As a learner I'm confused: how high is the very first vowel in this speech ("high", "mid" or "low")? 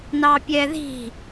low